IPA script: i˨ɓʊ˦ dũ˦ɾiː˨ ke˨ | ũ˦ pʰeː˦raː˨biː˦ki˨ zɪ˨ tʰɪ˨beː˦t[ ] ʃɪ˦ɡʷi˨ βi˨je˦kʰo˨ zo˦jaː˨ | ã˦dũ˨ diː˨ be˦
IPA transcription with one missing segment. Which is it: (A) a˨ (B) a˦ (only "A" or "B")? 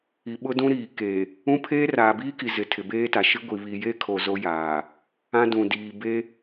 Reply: A